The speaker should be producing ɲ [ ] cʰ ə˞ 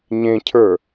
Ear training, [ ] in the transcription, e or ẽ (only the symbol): ẽ